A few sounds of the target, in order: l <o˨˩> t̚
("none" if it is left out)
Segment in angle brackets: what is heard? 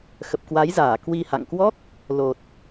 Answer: o˨˩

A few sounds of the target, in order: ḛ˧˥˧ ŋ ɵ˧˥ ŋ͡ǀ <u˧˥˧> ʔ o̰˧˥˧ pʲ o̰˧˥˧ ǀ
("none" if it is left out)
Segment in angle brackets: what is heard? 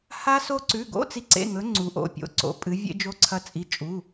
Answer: u˧˥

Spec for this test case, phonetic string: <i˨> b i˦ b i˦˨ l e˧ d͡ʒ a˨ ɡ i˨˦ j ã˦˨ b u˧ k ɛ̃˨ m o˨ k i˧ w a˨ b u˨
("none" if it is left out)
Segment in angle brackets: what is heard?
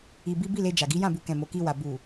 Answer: i˧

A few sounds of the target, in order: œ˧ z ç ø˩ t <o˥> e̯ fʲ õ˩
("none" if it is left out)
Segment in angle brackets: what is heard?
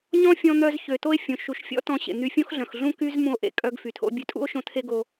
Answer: o˧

